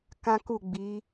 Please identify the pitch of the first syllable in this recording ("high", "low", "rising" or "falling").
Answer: high